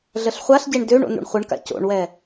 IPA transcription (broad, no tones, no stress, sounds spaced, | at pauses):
ɮ ə ɬ χʷ a ɬ ɟ e ɳ d ø ɳ o̰ n ṵ ɳ χʷ ə ɳ k a̰ c o̰ ɳ w ɛ